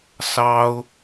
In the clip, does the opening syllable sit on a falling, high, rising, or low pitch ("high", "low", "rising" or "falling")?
high